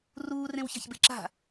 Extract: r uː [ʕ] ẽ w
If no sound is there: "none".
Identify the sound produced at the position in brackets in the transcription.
r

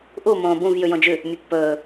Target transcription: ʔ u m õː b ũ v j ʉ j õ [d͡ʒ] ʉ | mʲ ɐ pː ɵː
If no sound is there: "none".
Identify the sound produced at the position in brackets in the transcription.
d͡ʒ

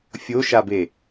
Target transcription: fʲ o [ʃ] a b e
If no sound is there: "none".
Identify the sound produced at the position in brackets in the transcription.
ʃ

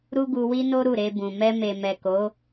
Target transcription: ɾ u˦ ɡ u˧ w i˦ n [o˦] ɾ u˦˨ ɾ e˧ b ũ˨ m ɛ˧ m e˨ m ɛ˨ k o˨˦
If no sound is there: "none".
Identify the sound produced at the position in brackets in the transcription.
o˦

